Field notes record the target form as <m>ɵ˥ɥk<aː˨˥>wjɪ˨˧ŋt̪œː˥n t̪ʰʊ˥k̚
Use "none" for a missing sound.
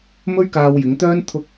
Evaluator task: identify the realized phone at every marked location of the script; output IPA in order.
m, aː˧

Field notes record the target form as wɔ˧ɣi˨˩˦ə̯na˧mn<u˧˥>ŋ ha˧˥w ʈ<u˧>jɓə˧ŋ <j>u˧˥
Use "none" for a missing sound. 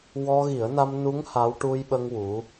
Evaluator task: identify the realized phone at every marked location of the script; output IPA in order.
u˧˥, u˧, w

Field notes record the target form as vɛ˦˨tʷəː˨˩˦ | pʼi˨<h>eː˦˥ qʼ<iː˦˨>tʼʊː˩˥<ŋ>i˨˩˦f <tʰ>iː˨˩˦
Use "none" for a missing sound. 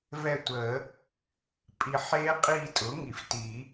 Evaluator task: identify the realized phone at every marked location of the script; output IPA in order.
ħ, iː˦˨, ŋ, t

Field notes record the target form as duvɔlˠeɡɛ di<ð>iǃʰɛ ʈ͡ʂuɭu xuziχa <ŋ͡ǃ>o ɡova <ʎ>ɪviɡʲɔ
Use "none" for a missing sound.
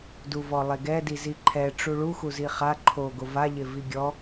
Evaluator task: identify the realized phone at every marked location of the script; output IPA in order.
z, ǃʰ, ʎ

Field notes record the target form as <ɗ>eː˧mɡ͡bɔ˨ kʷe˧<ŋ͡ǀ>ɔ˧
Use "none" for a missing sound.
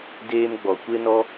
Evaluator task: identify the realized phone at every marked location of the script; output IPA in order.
d, n

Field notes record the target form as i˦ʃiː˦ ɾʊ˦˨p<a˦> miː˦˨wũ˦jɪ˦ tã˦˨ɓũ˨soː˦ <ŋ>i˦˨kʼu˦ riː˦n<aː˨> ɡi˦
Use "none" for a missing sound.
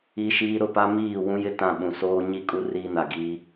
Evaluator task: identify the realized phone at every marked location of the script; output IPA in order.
a˦, ɲ, a˨

